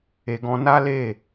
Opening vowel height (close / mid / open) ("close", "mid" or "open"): mid